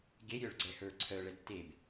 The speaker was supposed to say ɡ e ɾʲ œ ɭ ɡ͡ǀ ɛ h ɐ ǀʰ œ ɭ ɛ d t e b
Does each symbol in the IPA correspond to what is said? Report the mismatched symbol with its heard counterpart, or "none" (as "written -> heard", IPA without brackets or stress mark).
ɐ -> ə˞